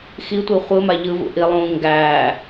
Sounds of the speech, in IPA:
xitʷi χʷɯma ʎɯvṵ ʔilˠũː ŋɡæː

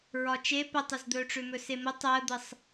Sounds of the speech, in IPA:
ɹɒt͡ʃe pətˤɵzd̪ɵːʈ͡ʂʏ mɵsemʊ tˤəːd̪əsˤ

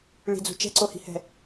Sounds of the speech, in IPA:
ɭi̤d͡zṳ t͡ʃɛ̤ǀohi̤hɛ̤

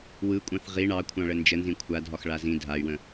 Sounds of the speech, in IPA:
wɯkʷʼɑ̃θ ʁi ɳɑ kʷʰɑ̃ɭənd͡ʒənzĩ kʷʰadʱɒx ɭazĩ dʱay̯wə̃

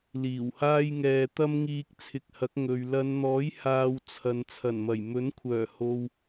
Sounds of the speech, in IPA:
liː˨˩whaː˥jŋɛː˧ t̪ɐ˥mŋiː˧k̚t͡sʰɪ˨k̚hɐ˨˥k̚ ŋɵ˨ɥ lɐ˨˧nn̪ɔː˨˥j haː˧wt͡sʰɐ˨n t͡sʰɐ˨˩nmɐ˨˩j mɵ˨˥n kʷʰœː˨˩ ho˨w

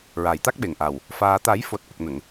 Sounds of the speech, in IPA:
ɹaː˨˩jt̪a˦˥k̚ɓe˨˩ŋʔa˨˩w | faː˧ t̪a˨˩˦jfo˨˩t̚ ʔə˨˩k̚nə˨˩˨ŋ

